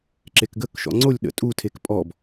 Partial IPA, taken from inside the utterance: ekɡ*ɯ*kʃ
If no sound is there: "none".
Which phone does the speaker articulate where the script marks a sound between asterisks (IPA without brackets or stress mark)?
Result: ə